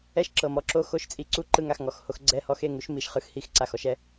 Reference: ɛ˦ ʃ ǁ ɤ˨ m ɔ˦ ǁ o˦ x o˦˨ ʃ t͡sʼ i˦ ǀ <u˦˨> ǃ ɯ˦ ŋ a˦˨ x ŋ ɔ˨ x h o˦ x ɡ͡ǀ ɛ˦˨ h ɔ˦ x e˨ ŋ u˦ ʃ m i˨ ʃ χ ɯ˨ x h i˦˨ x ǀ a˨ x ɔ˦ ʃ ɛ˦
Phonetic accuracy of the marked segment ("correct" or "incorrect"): incorrect